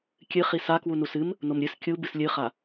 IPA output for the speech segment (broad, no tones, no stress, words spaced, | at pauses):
kʲɨχi sakwu nusɨm | nomɾʲɨs kʲu bɨslʲɨχa